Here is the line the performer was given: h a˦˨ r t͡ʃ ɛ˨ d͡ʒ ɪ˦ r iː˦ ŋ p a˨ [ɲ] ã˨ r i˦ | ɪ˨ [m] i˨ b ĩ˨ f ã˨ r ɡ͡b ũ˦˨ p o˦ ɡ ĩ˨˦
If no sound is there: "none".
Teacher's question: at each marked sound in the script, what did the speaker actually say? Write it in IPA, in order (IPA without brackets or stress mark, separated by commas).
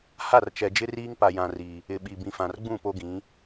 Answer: j, ɓ